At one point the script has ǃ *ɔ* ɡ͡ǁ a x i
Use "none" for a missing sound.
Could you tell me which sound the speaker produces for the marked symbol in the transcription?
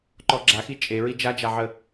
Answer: ɔ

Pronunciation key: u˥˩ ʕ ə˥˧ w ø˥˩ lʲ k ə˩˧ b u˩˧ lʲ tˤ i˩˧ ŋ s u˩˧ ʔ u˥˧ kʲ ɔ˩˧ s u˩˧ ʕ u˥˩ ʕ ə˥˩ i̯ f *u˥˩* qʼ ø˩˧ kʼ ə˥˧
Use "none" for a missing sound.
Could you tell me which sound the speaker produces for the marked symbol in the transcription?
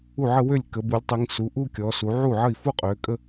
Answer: u˥˧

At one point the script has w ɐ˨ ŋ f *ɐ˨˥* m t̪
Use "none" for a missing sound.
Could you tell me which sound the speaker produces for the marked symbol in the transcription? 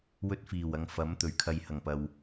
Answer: ɐ˨˥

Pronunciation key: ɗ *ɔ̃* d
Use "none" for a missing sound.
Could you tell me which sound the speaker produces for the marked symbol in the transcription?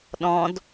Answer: ɔ̃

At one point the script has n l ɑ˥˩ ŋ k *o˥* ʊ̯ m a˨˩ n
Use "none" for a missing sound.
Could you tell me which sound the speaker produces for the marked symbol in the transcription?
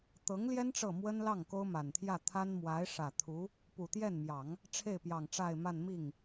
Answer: o˥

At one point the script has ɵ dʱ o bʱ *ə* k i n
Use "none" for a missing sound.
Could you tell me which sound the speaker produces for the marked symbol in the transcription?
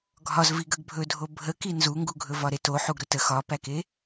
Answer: ə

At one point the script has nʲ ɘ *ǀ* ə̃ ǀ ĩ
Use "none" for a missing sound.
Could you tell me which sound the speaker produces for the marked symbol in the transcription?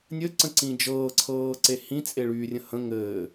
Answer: ǀ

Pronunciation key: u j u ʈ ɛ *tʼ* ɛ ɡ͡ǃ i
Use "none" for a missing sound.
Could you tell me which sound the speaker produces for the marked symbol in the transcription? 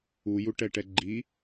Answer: ʈ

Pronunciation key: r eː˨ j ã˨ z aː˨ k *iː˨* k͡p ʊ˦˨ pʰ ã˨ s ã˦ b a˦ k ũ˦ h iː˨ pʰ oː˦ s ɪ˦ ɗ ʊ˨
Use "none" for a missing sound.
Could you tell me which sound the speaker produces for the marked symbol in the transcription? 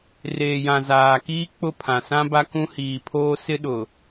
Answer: iː˦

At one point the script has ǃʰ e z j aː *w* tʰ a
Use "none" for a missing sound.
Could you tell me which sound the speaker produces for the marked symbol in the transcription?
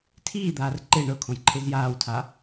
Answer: w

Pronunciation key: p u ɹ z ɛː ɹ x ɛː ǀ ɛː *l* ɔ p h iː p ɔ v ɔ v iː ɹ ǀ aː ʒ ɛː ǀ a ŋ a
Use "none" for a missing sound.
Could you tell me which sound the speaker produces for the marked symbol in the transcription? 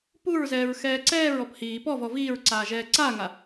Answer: ɹ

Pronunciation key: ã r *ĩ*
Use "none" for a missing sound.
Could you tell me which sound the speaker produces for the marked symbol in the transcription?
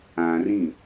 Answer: ĩ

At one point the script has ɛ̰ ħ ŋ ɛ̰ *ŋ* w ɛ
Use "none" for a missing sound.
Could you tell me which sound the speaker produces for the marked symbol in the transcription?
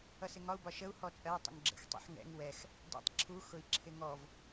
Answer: ŋ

